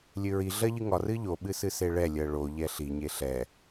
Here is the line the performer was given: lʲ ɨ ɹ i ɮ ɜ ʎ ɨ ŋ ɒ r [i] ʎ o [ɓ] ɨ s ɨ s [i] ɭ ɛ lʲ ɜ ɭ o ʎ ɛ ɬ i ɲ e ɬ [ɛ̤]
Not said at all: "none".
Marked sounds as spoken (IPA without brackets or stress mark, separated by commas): ɨ, ɓ, e, ɛ